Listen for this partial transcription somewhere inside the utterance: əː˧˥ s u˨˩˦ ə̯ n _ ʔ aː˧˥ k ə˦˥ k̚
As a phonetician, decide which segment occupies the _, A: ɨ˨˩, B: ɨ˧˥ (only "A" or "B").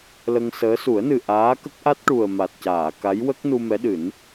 A